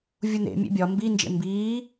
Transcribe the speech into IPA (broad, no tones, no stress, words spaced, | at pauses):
vʲunḛ mʲḛbʲɒ mbind͡ʒḛ mbiː